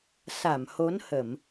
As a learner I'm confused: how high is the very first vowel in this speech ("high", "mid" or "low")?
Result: low